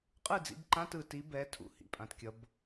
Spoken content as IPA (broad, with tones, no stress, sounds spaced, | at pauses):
qʼ ɯ˥˩ d͡z ḭ˨˦ b ǃ ã˧˥˧ t ɯ˨ t i˨˦ b ɛ˨˦ tʰ ṵ˨ h ḭ˨ pʼ ã˨ t kʲ ʌ˨˦ b